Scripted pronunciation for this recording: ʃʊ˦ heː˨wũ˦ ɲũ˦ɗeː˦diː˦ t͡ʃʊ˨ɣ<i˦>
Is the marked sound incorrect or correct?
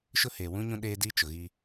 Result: correct